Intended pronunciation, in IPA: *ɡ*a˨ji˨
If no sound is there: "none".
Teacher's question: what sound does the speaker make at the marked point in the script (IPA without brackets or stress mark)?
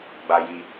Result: ɡ͡b